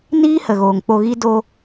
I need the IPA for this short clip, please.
n iː˦ h ə˨ ɣ oː˨ ŋ k͡p o˧ ɣ i˦ d o˧

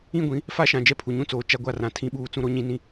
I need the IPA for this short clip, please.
ĩ˦˨ ɡʷ ĩ˨˦ | f a˦ ʃ ã˨ d͡ʒ ɛ˦ pʰ u˨ ɲ ũ˦ t͡s oː˨ t͡ʃ a˦ ɡʷ a˦˨ r ã˨ tʰ ĩ˦ ɓ uː˦ t͡s ũ˦ ɾ o˦ ɲ ĩ˦ n ĩ˦

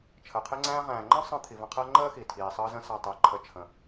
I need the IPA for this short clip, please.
t͡ʃʰ əː˩ qʰ e˦ ŋ͡ǀ æ̃ː˦ ʁ æ̃ː˩ ŋ͡ǃ ə̃˥ sˤ ə̃ː˦ t̪ʰ i˩ v ə̃˨ qʰ ɜ˦ ŋ͡ǃ əː˦ x i˩ tʰ iː˩ sˤ əː˦ z ə̃˦ s a˨ tˤ əː˩ ǃʰ ə˨ t͡ʃʰ ə̃˩

